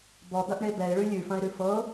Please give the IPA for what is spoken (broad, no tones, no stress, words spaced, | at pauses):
bɔd̪ɐʔɳe bɛɪ̯ɭʉ lʲʉfɐ̃ɪ̯ɾʉ fɤ